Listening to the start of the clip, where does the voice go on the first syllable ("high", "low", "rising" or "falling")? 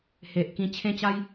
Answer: low